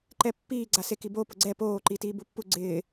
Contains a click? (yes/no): yes